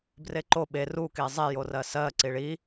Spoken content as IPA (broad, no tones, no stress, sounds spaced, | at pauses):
b r e ǃ o ɓ e r u k e zˤ e j o r ɜ s ɜ ǀ i ɭ i